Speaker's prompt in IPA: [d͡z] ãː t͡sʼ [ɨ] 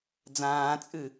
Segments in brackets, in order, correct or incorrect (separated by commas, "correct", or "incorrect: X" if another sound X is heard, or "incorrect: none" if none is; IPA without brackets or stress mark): correct, correct